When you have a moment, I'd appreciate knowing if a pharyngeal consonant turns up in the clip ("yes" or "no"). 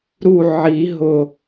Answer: yes